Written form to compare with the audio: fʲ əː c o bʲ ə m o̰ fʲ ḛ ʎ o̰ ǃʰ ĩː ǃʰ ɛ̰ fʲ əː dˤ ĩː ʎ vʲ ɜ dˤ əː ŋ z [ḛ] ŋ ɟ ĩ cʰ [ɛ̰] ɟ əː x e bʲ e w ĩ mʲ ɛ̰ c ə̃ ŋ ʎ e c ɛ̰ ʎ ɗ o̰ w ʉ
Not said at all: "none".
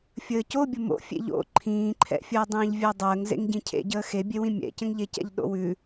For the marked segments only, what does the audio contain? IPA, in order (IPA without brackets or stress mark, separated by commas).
ḛ, ḛ